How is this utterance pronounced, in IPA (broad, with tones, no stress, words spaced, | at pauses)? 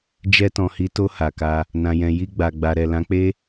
d͡ʒɛ˧tɔ̃˨hi˨˦to˧ ha˨ka˧ | nã˨jɛ̃˨ji˧ɡ͡ba˨ ɡ͡ba˨ɾɛ˨ lã˨˦k͡pe˦